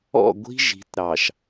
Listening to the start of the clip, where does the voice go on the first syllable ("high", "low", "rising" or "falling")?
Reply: falling